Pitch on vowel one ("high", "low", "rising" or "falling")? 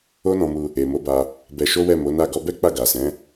high